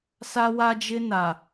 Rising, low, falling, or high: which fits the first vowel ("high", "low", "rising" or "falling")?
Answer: high